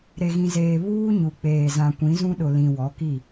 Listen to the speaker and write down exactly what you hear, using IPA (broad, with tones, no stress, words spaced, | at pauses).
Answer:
ɾe˨ɣĩ˨zeː˨ βuː˦ɲu˨k͡peː˨zã˨ kʷĩ˨˦zũ˦ɗʊ˨ lĩ˨wɔ˨˦ki˦˨